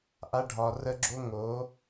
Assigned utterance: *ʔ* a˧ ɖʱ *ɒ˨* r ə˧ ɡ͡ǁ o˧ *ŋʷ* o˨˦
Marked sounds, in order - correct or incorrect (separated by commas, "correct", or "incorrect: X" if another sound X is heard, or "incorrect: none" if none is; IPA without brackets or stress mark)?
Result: correct, correct, incorrect: ŋ